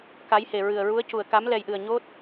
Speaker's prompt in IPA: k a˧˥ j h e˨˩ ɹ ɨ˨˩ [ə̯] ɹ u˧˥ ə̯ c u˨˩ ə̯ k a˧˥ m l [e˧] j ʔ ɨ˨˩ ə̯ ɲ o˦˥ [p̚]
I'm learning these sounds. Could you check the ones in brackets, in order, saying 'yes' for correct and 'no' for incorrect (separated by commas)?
yes, no, no